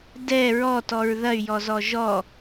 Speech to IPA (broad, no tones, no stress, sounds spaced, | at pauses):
d ɛ ɹ ɔ t ɔ ɹ ð ɐ y̯ j ɔ z ɔ ʒ ɔ